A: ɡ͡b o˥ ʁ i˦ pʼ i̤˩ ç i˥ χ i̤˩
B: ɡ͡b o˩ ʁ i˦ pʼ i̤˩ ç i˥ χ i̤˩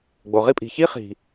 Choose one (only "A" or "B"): B